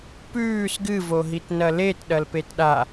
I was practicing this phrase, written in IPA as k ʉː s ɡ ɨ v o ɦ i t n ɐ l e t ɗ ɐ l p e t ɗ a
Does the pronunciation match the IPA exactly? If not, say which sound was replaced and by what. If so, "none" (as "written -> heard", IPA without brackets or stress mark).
k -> p